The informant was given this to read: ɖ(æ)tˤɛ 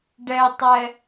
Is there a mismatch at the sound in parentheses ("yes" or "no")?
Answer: yes